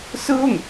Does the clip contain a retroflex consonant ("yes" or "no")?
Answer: no